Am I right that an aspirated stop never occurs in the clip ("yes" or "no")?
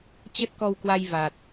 yes